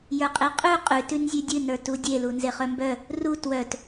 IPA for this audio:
j ə˞ qʼ e qʼ ʉ qʼ ʉ t ʉ n zʲ ʉ dʲ ɨ n ə˞ t u dʲ e l u n z e χ œ m b œ | r u t w œ t

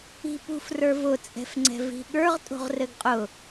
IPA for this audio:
i̤ p ṳ f r ə˞ v ʊ t͡sʼ ɛ̤ f ŋ͡ǀ ɛ̤ v i̤ ɠ ə˞ ʁ tʼ o̤ ʁ r ɘ ɡ qʼ ʊ

